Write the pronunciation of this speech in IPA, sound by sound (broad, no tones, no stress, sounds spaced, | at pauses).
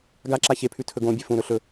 ɡ a ǁ a ç e pʰ ʉ tʰ ɵ ɡ õ bʲ e f ũ ɾ ɵ ɬ ɵ